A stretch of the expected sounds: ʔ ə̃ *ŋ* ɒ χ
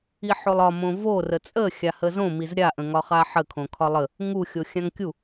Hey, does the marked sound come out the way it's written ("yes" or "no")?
yes